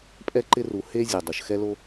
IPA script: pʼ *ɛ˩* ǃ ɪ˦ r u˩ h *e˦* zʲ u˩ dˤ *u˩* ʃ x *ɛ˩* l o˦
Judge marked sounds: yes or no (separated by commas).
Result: no, yes, yes, no